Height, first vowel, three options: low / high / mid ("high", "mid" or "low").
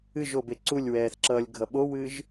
high